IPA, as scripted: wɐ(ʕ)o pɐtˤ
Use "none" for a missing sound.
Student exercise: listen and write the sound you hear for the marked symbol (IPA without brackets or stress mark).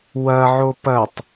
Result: ʕ